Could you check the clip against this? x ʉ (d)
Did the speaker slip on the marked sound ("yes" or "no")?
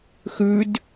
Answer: no